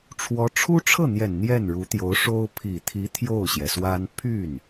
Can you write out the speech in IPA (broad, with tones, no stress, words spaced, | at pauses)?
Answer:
ʈ͡ʂʰwɔ˧˥ʈ͡ʂʰu˥ʈ͡ʂʰɤ˥˩n̪jɛ˨˩n n̪jɛ˥˩nɻu˧˥t̪jo˧˥ʊ̯ ʂo˥ʊ̯ pʰi˨˩t̪ʰi˧˥ t̪ʰjo˥˩ʊ̯ɕjɛ˩swa˥n pʰy˥˩n